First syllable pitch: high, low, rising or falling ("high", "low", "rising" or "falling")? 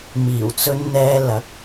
low